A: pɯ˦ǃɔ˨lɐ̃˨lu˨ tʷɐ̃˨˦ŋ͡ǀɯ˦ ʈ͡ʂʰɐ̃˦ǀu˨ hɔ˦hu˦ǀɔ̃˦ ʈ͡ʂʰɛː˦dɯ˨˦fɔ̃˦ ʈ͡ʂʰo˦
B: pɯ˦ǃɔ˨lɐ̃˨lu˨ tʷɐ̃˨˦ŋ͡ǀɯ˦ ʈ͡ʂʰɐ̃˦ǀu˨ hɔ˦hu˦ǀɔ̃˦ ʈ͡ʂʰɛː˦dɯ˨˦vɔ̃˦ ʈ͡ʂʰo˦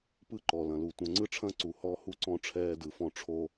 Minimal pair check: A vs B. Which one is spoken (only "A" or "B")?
A